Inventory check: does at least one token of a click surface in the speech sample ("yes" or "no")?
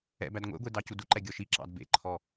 yes